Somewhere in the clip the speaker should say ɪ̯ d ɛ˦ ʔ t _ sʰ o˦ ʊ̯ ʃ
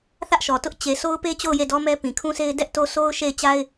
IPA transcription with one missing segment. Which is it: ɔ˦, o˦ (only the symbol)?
o˦